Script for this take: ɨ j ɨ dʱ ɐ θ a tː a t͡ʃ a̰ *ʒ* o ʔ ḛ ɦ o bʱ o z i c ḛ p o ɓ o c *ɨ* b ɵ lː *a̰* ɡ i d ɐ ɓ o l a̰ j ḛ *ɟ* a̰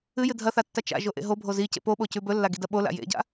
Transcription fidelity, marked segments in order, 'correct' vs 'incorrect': correct, incorrect: ʉ, incorrect: a, correct

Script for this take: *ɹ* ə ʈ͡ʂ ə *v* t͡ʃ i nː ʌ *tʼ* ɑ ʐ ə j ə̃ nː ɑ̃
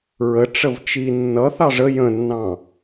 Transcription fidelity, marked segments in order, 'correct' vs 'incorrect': correct, correct, incorrect: θ

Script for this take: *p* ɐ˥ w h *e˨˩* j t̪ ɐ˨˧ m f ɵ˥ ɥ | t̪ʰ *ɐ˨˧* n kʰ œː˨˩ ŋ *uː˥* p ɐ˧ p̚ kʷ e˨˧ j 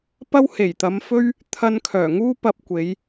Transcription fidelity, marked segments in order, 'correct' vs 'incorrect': correct, correct, incorrect: ɐ˧, correct

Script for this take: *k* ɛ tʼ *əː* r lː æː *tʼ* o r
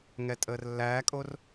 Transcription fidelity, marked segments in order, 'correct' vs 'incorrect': incorrect: ŋ, correct, incorrect: kʼ

